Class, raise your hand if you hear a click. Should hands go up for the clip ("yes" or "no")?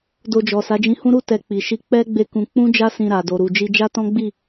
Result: no